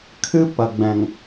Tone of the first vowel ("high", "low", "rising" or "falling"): high